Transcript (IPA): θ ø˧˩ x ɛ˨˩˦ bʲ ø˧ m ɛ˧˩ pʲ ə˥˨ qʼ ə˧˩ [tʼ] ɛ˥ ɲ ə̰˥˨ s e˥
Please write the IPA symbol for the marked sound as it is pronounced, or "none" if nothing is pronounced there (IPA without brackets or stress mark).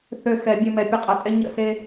tʼ